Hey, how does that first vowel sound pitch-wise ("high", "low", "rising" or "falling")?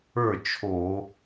falling